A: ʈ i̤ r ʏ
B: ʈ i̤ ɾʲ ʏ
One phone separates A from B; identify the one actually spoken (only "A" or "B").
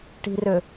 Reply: A